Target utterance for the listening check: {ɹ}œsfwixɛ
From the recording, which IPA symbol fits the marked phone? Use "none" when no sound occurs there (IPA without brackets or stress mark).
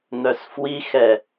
n̪